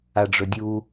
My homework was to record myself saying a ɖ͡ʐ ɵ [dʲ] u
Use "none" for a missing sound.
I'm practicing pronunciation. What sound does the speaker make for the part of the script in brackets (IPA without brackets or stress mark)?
dʲ